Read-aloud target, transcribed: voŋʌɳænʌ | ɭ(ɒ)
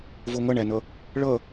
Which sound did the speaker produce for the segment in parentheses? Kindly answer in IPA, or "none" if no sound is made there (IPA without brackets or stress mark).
ʌ